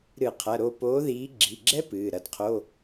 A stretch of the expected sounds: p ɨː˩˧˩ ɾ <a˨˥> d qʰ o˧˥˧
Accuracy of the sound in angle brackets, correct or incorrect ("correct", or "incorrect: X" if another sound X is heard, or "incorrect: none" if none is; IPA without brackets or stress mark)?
incorrect: ɐ˨˥